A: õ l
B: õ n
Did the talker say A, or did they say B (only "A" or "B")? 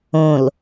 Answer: A